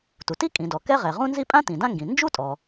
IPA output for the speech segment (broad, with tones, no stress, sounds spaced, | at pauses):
t u˩ t i˥ kʼ ĩ˩ d ɔ˩ k ɛ˥ ʁ ɛ˩ ʁ ũ˥ n z i˥ pʼ ã˥ t ĩ˩ d ã˥ ŋ ɡ ĩ˩ n d͡ʒ u˥ tʼ ɔ˩